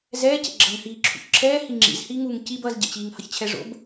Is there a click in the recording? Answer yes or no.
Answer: yes